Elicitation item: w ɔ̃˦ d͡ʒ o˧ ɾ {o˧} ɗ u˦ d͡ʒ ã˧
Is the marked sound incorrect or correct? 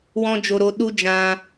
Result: correct